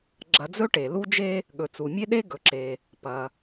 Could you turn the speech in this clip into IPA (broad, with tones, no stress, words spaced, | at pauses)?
ɡ͡ǁɐ˧d͡zɵ˥ʈe˩ lu˥d͡ʒe˥ | ɠɵ˩t͡su˩mʲe˥ɗe˥ ɡɵ˩ǁe˩ | pɐ˩